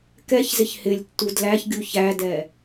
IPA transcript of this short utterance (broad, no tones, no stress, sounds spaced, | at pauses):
k ɛ ç z ɪ ç h ɪ lʲ tː u d l æ ç ɡʲ u ç æ d ɛ